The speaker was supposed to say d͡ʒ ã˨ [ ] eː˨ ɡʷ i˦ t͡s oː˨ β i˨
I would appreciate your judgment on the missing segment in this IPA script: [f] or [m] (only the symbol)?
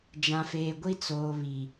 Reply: f